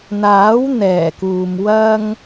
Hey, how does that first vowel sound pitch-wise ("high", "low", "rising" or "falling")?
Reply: rising